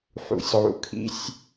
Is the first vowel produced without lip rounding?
no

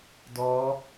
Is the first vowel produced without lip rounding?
no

